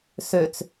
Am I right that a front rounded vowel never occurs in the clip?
no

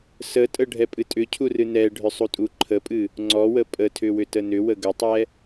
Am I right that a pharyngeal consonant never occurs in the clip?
yes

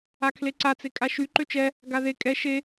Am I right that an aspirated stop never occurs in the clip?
no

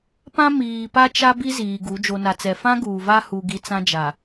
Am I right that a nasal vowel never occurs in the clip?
no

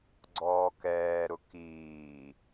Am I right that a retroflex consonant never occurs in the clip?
yes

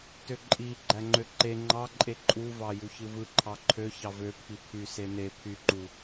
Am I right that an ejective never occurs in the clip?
no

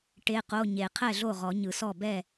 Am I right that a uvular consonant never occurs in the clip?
no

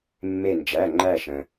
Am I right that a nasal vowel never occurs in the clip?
no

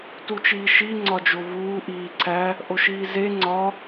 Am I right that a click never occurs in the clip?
no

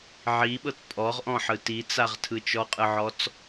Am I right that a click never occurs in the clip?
yes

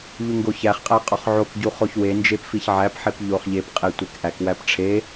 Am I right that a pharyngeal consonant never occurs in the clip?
no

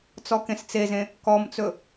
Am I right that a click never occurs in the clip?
yes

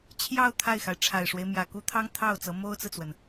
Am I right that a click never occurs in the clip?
yes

